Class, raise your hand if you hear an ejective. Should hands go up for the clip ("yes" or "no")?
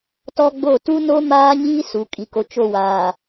yes